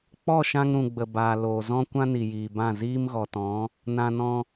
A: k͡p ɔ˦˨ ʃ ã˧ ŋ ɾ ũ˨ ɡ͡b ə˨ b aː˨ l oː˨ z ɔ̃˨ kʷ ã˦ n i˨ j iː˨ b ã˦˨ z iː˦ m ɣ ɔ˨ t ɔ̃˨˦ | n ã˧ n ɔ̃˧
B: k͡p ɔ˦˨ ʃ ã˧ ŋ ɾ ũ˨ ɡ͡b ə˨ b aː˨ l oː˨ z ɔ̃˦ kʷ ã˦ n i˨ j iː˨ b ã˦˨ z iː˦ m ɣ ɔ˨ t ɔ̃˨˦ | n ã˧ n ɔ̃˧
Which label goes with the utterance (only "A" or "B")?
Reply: B